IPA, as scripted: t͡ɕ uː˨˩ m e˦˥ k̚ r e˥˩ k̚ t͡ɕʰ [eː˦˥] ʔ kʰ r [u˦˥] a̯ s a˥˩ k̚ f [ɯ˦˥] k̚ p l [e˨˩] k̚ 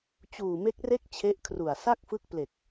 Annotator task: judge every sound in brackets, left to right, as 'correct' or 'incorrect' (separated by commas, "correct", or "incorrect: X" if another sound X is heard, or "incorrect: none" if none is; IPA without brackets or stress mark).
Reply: incorrect: e˦˥, incorrect: u˨˩, correct, correct